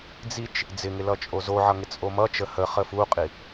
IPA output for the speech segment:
d͡zit͡ʃ | d͡zɪŋɪ lʌt͡ʃʼozoʕʌ ŋɪt͡sʼomʌt͡ʃə həχə fuqʼi

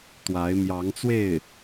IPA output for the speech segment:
t̪wa˧˥ɪ̯ mjɑ˧˥ŋt͡swe˥˩ɪ̯

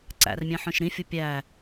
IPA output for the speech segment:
ǀæ̰rmʲɛ̃ħœ̃ʃ ɾĩfʲu pʲæ

